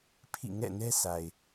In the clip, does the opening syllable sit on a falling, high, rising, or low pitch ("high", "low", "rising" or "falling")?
falling